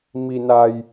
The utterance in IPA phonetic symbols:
m i˧ n a˧ j

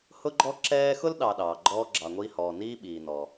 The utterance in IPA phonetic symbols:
h ʊ˦ ɡ͡ǃ ɔ˦ ǁ ɛː˦ x ʊ˥ l ɗ ɑ˨ ɗ ɑː˩ ɡ͡ǃ ɔː˦ ɡ͡ǁ ɑ˨ ŋʷ iː˦ h ɔː˩ n iː˥ ɓ iː˨ n ɔ˩

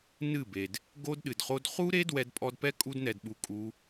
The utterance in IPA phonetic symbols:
n ɨ˦˨ b e˨ d | ɡ o˦ d ɗ ɨ˨ d χ o˦ d χ u˦ ɾ e˦ d w ɛ˧ d pʼ ɔ˧ d p ɛ˦ kʼ u˧ d n ɛ˨ d ɓ u˨ kʼ u˧

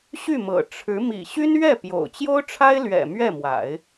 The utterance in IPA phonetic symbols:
ɕ y˥˩ m ɤ̰˨˩ ʈ͡ʂʰ ɻ̩˧˥ m ḭ˨˩ ɕ y˥ n ɥ ɛ˥˩ p j o̰˨˩ ʊ̯ t͡ɕ j o˥ ʊ̯ ʈ͡ʂʰ a˥ ɪ̯ l ɥ ɛ̰˨˩ m ɥ ɛ˥˩ m w a̰˨˩˦ ɪ̯

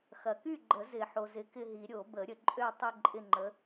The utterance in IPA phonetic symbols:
x ɐ˨ k y˥˨ ɡ͡ǃ ə˨˩˦ z ɪ˨˩˦ ħ o˨ z ɪ˨˥ k ɪ˥˨ ɦ i˨˩˦ ɾʲ o˨˩˦ b ə˨˩˦ ɾʲ ə˨ ǃʼ ø˥˨ tˤ ɪ˥˨ ǃʼ ɪ˥˨ ŋ͡ǃ ə˨˥

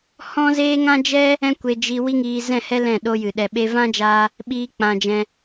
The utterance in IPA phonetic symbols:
h ɔ̃˦ z eː˦ ŋ ã˦ d͡ʒ ɛ˦ | ɛ̃˦ kʷ e˧ d͡ʒ i˧ w i˦ ŋ iː˧ z ɛ̃˦˨ h ɛ˦ l ɛ̃˦˨ ɗ o˦ j ɨ˨ ɗ ɛ˨ ɓ e˧ v ã˦ d͡ʒ aː˧ | ɓ iː˦ k͡p ã˧ d͡ʒ ɛ̃˧

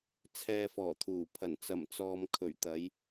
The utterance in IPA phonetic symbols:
t͡sʰ ɛː˨ f ɔː˨˩ t̪ʰ uː˨˩ pʰ ɐ˨˩ n t͡s ɐ˨˩ m t͡s ɔː˨ m kʰ ɵ˨˩ ɥ t̪ ɐ˨˧ j

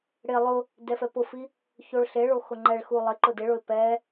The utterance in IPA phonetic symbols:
ɽ ɪ lˠ ʊ | d ɛ f ɛ p ʊ f i | ç o ɭ ɬ e ɭ o x ʊ ŋ͡ǃ ɛ ɭ x u lˠ ɪ ǃ ʊ d ɪ ɭ ʊ ɪ̯ p ɛ

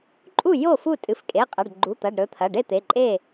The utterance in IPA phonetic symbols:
ǃʼ u˥˩ j o˥˩ f u˥˩ tʼ ɨ˩˧˩ f kʼ e˩˧˩ qʼ ɐ˩˧˩ ɖ ɡ͡ǃ u˩˧˩ t̪ ɐ˩˧˩ ɖ ɾ ɵ˩˧˩ t̪ʰ ɐ˩˧˩ ɖ e˥˩ t̪ e˩˧˩ ǃʼ e˥˩

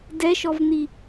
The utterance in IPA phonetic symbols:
d ɛ ʃ ɔ v n̪ i

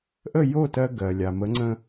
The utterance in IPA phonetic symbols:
ʔ ə˥˩ j o˥˩ t ɜ˧ ɡ ɜ˩ lʲ a˩ m ə˩˥ ŋ͡ǀ ə̃˧

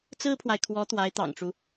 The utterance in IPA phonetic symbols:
t͡s ɹ̩˥ pʰ w a˨ ɪ̯ kʰ w ɔ˧˥ t̪ w a˧˥ ɪ̯ t̪ ɑ̰˨˩ ŋ ʈ͡ʂ u˦

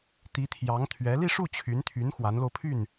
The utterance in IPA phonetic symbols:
t̪ i˧˥ t̪ʰ j ɑ˧˥ ŋ t̪ʰ ɥ ɛ˧˥ l i˥˧ ʂ u˥˩ t͡ɕʰ y˧˥ n t̪ʰ y˧˥ n x w a˧˥ n l o˧ ʊ̯ pʰ y˥˩ n

